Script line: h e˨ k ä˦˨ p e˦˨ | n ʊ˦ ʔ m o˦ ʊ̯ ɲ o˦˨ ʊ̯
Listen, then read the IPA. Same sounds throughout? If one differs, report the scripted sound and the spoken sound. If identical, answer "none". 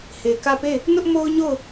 none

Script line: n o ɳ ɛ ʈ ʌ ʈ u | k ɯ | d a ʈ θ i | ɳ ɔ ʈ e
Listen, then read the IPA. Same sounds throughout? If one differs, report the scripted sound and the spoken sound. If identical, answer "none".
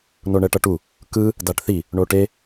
ɔ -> o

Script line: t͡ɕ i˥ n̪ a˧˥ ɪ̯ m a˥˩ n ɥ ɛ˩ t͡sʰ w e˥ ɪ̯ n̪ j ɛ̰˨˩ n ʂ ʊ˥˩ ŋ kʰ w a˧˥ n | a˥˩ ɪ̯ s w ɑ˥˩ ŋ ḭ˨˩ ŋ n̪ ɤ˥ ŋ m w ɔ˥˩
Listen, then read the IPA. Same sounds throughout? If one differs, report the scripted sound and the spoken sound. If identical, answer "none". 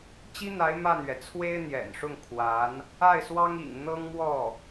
ɑ˥˩ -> ɑ˥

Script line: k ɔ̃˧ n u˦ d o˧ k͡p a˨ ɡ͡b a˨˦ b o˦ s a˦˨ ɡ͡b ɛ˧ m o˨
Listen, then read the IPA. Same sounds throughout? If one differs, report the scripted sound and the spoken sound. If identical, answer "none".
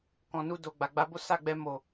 k͡p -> ɡ͡b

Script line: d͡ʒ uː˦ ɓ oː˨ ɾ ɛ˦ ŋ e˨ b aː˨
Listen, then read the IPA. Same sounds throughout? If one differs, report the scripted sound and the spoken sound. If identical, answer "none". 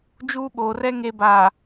ɾ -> r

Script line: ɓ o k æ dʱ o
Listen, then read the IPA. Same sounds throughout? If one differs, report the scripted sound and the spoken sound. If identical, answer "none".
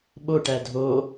k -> ʈ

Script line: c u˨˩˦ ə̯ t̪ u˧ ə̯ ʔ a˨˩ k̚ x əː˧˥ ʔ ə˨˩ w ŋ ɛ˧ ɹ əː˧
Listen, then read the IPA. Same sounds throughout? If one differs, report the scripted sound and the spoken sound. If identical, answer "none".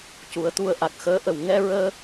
none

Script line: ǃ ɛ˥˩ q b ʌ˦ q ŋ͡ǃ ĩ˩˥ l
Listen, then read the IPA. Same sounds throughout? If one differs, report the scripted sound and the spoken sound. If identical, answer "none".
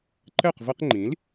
b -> v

